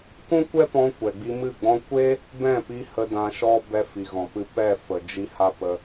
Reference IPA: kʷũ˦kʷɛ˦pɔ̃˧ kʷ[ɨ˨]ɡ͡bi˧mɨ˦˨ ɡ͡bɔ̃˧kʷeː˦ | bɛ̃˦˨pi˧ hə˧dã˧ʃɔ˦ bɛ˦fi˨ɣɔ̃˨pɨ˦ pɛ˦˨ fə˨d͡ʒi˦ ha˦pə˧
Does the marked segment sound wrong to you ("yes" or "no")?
yes